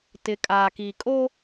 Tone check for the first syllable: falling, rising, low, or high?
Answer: rising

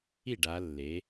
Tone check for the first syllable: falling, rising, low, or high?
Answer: falling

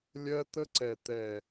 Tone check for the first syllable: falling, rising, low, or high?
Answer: high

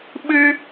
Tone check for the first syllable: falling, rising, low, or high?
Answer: high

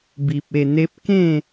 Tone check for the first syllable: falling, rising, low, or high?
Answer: low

